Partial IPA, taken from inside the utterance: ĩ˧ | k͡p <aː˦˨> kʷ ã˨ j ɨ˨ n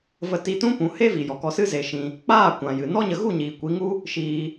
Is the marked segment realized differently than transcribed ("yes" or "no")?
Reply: no